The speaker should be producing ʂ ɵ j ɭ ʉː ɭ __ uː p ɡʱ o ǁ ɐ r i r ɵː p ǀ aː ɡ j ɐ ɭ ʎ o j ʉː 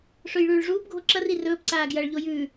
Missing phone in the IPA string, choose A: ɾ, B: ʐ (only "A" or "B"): B